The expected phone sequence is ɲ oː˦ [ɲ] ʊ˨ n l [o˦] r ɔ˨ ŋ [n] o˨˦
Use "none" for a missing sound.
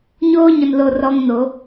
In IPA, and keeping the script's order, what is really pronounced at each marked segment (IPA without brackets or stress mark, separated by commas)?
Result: ɲ, o˨, n